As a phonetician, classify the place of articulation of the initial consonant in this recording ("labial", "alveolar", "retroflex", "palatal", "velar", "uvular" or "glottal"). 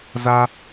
alveolar